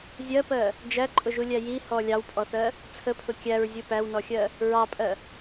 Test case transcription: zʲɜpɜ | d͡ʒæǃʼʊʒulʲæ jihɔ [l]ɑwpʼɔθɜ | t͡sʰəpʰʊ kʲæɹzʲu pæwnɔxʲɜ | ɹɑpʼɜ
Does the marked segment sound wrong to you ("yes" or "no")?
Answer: yes